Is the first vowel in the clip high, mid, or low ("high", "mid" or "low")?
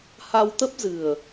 low